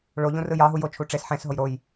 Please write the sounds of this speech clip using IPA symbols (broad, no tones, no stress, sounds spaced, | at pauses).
ɭ o ʎ ũ r ɯ j ɑ ɦ u j o t͡ʃʰ u ʈ͡ʂ e s ħ ẽ s ɦ o j ɾ o j